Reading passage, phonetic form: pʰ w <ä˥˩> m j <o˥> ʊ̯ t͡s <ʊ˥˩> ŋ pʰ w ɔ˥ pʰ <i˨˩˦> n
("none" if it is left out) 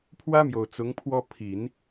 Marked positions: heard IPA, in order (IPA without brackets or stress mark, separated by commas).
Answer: ä˥, o˨˩, ʊ˧˥, i˨˩˦